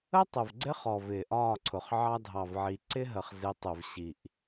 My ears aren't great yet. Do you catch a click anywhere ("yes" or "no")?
yes